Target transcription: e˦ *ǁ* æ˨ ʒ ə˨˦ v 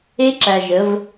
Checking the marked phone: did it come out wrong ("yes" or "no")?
no